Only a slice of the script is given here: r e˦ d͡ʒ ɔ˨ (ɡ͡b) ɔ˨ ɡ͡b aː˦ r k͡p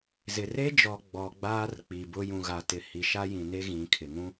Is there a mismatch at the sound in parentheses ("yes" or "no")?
no